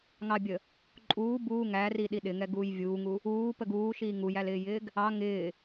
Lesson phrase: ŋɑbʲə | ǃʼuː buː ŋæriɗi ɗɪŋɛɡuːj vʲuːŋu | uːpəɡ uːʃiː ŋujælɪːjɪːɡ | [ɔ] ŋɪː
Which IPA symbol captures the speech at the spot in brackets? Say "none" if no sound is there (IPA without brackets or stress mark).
ɑ